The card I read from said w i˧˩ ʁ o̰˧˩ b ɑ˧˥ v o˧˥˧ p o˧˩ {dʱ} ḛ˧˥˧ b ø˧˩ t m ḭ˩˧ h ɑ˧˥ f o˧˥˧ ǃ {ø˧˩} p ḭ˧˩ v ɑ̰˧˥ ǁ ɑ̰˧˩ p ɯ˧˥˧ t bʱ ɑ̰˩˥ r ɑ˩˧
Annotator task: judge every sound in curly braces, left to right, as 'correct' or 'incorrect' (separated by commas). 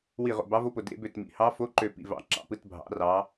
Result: incorrect, correct